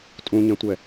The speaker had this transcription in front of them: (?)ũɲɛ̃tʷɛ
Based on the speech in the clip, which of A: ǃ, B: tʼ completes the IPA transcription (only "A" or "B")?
B